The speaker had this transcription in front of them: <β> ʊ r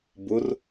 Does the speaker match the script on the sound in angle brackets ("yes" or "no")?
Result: no